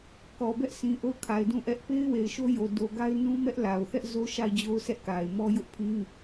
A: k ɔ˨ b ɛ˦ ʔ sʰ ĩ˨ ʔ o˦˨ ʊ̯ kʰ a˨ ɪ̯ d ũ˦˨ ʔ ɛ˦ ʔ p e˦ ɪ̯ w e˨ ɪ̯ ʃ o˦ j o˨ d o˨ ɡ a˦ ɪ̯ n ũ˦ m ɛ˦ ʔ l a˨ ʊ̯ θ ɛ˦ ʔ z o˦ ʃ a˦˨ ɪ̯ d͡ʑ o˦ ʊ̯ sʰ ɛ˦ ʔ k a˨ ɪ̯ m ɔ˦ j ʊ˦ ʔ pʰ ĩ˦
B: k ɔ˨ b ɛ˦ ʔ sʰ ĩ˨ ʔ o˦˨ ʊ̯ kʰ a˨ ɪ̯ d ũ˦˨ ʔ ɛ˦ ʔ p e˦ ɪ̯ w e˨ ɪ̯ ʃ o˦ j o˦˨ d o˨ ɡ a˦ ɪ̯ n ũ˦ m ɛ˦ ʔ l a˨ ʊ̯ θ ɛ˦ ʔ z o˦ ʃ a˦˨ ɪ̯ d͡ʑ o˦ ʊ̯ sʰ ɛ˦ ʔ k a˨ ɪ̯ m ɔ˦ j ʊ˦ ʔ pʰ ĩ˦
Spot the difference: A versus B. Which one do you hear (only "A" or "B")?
A